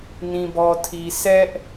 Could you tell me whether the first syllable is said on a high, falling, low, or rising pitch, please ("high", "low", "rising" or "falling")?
low